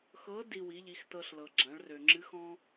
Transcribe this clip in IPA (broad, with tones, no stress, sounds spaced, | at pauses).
x ɤ˧˥ d i˧ w i˩˧ ʎ i˩˧ x t ɤ˧ ɬ l ɤ˩ ɡ͡ǁ ã˩˧ ɭ r ø˩ ŋ͡ǁ ɨ˧˥ x ɔ̃˥